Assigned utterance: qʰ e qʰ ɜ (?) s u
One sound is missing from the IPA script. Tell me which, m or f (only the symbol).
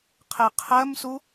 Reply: m